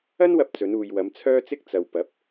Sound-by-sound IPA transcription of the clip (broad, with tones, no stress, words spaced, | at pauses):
ɐ˥nwɐ˧p̚ t͡sɵ˨˧nuː˨jwɐ˨˧m t͡sʰœː˥t͡sɪ˥k̚ t͡sɐ˨wpɐ˨˥p̚